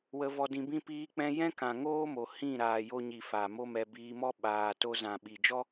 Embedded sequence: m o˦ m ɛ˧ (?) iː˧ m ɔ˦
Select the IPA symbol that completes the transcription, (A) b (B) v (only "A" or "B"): A